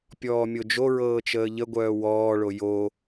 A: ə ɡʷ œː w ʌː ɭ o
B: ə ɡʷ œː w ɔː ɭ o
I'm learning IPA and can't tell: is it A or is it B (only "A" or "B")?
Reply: B